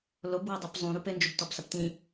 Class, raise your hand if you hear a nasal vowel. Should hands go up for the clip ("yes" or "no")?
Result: yes